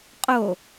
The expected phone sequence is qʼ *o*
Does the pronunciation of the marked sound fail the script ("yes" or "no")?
no